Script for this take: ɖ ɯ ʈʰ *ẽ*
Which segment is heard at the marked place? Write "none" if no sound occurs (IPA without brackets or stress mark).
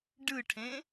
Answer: ẽ